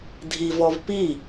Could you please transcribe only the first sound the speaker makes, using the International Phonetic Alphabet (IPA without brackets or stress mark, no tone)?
dʱ